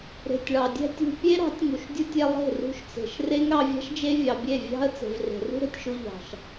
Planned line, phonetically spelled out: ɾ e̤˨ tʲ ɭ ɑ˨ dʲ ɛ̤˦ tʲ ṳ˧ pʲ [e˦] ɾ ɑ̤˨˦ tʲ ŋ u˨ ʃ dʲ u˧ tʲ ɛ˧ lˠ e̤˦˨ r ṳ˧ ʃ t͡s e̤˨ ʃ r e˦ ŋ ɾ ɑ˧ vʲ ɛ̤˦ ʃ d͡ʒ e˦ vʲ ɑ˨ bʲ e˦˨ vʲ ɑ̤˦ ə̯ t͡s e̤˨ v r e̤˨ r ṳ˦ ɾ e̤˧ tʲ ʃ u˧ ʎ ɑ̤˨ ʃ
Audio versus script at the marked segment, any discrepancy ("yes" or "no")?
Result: no